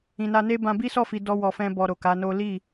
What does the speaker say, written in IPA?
ĩ˨na˧ne˦ bã˧bi˦sɔ˦˨fi˨ dɔ˧wɔ˨fɛ̃˧ bɔ˧ɾo˨ka˨˦no˦ li˦˨

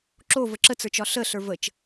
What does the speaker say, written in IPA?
ǁovə ǁət͡sə˞t͡ʃɒ ɬəɬə˞ vət͡ʃ

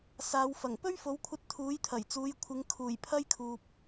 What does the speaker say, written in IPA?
saː˨˧wfɐ˨˩ŋ pɵ˥ɥfo˨˥wkʷʰɐ˧t̚ t̪ʰuː˨˥jt̪ʰɐ˨˩jt͡suː˨˧jkʷʰɪ˨˧ŋ kʰuː˨˩jpʰɐ˥jkʰuː˨p̚

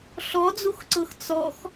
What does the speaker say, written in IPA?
ɬɔd͡zuxǀɤx t͡sɔx

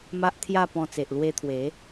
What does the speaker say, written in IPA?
ma˦ʔt̪ʰja˥˧pɔ̃˧ t͡se˨ʔlwe˧t̪ʰwe˨˦

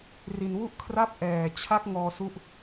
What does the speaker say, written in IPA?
ri˧n wu˦˥ʔkʰra˦˥p̚ ʔɛː˨˩ t͡ɕʰa˦˥k̚ ŋɔː˧su˦˥ʔ

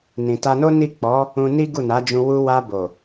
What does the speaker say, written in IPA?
nĩ˨ ta˧no˦ni˦˨ k͡pɔ˨˦ | ũ˧ni˦ ɡu˦˨na˨˦d͡ʒũ˧ wu˧wa˧ bo˨

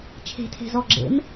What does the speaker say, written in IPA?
t͡ʃʰe̤tʰe̤ zɔɡ͡ǁḛm

